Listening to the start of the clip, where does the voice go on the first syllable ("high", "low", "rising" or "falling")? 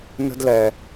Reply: high